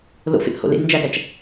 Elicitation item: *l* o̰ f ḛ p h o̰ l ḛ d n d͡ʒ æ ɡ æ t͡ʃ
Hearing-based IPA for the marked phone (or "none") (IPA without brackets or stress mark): l